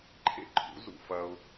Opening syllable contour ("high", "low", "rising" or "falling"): high